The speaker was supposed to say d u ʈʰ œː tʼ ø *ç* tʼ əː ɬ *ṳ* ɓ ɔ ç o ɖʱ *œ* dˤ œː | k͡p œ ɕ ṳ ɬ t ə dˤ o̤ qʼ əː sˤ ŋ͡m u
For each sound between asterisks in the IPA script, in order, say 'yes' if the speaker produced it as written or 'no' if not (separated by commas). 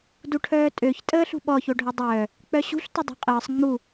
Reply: yes, yes, yes